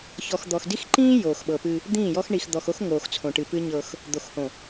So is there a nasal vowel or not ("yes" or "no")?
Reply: yes